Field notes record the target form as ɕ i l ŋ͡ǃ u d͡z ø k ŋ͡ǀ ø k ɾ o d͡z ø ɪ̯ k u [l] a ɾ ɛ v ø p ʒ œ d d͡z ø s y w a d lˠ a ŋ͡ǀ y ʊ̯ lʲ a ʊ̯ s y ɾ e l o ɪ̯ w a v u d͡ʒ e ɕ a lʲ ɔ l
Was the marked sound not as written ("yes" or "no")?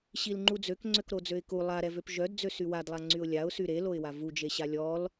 yes